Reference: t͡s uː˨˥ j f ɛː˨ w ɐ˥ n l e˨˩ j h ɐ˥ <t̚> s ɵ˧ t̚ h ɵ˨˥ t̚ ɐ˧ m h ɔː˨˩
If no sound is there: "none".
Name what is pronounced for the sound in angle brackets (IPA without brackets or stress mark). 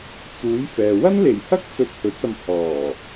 k̚